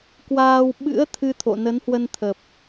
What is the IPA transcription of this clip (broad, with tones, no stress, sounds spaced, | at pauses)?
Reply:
k w aː˧ w ɓ ɨ̰˧˥ ə̯ t̪ʰ ɨ˧ t̪ʰ o̰˧˨ n ə˨˦ n h w ə˧ n t̪ʰ ə˨˩ p̚